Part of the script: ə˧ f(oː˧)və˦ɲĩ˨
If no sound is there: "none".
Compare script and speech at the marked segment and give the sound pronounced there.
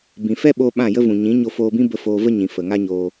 oː˧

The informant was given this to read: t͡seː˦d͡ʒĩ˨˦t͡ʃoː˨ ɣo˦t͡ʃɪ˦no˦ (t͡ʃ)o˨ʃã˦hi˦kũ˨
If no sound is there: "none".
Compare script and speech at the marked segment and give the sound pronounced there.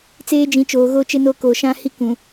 k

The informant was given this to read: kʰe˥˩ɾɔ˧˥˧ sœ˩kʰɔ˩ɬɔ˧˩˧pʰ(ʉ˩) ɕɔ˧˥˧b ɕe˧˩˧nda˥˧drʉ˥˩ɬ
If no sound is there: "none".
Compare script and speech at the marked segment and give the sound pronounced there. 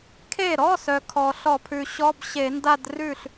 ʉ˩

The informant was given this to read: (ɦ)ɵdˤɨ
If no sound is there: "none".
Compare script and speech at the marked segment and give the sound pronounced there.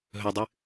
ɦ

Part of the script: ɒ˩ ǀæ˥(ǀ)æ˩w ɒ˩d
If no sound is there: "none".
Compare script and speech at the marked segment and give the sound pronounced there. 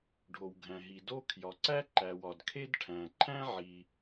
ǃ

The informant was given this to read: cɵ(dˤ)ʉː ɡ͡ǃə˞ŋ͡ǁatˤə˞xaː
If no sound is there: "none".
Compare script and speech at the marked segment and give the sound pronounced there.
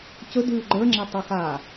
d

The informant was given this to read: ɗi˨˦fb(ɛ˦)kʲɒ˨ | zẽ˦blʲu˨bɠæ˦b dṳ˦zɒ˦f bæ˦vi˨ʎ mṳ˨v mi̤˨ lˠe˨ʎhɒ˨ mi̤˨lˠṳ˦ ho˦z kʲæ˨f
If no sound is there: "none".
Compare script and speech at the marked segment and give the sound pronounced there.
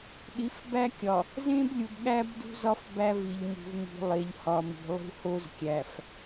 æ˦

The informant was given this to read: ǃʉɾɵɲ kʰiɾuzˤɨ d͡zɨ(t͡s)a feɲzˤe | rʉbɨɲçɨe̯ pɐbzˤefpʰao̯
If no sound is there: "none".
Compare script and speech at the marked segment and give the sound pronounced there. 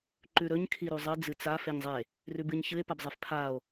t͡s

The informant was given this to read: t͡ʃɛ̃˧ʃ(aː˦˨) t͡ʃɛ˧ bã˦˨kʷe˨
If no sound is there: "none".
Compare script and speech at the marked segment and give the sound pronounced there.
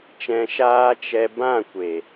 aː˦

